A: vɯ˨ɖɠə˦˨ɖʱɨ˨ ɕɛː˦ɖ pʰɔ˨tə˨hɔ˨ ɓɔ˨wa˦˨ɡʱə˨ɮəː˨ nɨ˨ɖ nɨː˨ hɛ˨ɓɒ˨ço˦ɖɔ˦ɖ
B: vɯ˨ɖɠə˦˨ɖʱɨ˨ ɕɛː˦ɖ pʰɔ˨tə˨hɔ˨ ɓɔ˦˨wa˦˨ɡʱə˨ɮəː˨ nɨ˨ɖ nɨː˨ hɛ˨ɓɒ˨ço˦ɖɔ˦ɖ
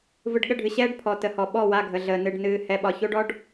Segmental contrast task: B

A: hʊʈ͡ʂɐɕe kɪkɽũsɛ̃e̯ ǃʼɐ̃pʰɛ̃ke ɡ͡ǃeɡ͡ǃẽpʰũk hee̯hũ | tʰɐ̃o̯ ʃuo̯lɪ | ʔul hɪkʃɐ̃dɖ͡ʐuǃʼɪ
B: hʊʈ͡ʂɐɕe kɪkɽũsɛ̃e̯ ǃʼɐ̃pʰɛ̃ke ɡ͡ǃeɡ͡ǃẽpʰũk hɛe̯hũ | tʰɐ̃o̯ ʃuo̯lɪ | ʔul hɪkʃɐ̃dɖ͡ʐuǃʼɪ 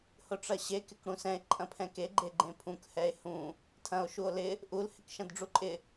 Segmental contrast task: B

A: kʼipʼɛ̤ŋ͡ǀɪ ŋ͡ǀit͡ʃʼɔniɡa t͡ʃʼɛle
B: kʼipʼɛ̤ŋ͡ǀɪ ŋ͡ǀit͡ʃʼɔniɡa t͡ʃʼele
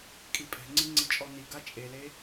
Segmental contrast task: B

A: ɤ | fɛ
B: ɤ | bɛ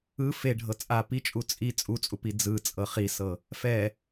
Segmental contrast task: A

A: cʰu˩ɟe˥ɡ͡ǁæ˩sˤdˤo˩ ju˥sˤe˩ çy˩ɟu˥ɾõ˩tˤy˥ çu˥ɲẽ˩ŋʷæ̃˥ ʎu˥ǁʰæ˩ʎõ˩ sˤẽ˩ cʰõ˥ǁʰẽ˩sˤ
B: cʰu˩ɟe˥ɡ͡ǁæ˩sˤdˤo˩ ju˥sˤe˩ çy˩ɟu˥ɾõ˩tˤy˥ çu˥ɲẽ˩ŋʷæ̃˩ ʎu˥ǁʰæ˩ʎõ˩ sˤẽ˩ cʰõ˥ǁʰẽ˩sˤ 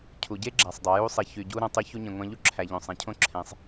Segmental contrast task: A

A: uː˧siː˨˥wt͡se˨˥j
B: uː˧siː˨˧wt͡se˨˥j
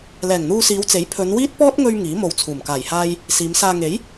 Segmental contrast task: B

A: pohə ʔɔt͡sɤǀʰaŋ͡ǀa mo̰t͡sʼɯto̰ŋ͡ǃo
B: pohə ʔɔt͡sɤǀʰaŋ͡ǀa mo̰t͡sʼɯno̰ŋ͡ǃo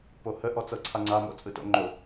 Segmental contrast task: A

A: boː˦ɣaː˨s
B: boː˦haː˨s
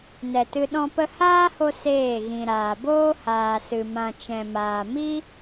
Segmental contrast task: B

